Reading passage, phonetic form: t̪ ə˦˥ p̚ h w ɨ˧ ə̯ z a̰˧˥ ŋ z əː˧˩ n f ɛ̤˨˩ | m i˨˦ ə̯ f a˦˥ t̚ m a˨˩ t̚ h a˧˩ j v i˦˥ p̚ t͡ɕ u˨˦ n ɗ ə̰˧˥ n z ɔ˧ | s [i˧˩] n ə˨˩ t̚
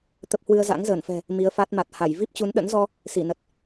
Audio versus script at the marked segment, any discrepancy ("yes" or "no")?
no